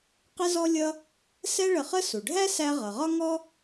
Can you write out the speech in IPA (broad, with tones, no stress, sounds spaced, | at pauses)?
q ɪ˥ z ɔ˥ lʲ ʌ˥ | s ɛ˥ ɭ ə˧ χ ə˥ s u˩ ɖʱ æ˥ s æ˧ ʁ ʌ˩ ʁ ɒ˥ ŋ ɔ˥